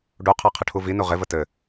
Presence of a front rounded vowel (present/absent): absent